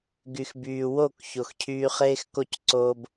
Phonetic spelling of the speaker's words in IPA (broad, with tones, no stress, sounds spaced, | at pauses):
ɡ y˨ x b yː˨ w o˦˨ k ç o˨ x cʰ yː˧ χ eː˦ x k o˦ c ǀ oː˦ b